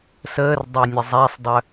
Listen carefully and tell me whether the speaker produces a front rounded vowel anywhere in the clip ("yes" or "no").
yes